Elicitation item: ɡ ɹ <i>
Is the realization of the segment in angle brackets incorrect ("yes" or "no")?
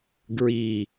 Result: no